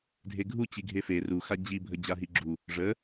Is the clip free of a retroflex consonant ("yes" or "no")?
no